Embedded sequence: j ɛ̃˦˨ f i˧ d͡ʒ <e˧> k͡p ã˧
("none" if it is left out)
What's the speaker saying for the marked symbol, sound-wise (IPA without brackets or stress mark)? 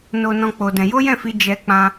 ɛ˧